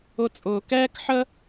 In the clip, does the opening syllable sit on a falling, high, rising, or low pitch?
high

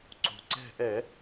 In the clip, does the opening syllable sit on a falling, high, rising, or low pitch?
low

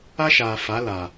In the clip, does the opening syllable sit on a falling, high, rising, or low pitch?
high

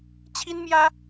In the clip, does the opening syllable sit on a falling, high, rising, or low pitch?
high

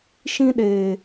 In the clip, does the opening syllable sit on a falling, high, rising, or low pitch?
high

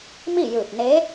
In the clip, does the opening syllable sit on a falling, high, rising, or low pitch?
falling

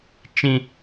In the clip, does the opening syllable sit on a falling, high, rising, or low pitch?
high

